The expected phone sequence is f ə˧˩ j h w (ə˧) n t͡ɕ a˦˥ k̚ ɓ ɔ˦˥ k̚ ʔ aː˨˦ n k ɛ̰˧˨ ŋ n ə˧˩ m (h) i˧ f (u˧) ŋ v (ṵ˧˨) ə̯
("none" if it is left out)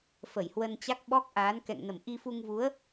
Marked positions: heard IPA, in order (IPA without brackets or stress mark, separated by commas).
ə˧, ʔ, u˧, u˨˦